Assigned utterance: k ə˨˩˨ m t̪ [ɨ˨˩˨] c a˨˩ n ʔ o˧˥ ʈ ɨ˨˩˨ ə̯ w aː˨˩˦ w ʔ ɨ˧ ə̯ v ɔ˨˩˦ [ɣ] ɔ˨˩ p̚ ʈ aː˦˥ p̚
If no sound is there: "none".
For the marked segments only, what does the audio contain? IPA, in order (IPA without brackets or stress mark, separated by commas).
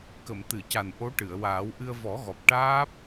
ɨ˨˩˨, ɣ